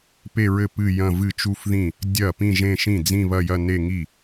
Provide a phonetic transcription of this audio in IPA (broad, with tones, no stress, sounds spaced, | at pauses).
p e˥˧ ɹ ɘ˥˩ p ɨ˥˧ j ɐ̃˥˧ v ɨ˥˩ t͡ʃ u˥˧ f ð ĩ˥˩ | dʲ ɐ˥˩ p ĩ˥˧ ʒ ẽ˥˧ ʃ ĩ˥˩ d͡z ĩ˥˧ β ɐ˥˧ j ɐ˥˧ n e˥˧ ŋ i˥˩